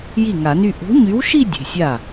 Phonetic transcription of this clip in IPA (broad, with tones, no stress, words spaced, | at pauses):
ji˥˩ŋa˨˩˦ny˥˧ ʔo̤˨˥ɲy˨˥wʃi˥˧ dʲe̤˩˧˩sʲa˥˩